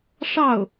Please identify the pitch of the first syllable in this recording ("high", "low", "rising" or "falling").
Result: falling